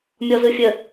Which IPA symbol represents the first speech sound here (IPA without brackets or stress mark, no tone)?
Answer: mʲ